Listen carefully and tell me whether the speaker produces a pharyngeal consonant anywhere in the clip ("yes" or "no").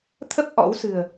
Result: no